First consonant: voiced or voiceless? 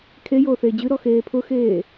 voiceless